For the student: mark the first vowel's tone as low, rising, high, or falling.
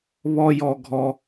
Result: high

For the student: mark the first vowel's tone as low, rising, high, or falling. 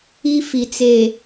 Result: high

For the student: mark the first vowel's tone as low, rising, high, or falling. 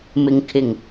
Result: low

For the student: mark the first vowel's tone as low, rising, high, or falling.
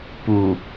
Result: low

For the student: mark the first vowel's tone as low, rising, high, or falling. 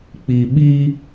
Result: low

